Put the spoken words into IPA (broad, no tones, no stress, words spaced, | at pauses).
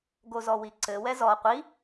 ɡozɔwiǀɘ wɛzɔ qʷi